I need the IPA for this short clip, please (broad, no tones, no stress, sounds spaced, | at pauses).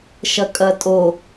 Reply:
ʃ ɐ kʼ ɐ tʼ o